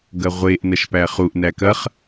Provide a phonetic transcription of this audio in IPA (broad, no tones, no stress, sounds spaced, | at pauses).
ɡ ɐ ʁʷ e ʔ n ɐ ʃ p æ χ u ʔ n æ k ɐ χ